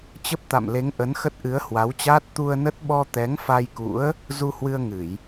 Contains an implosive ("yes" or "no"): yes